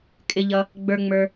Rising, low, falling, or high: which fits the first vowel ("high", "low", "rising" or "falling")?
low